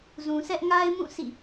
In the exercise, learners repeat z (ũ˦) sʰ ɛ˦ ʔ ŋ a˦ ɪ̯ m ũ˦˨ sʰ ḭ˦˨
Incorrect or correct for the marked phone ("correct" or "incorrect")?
incorrect